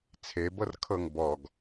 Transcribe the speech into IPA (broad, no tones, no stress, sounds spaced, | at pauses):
t͡sʰ e b ɤ r kʰ ɤ ŋ b ɔ ɡ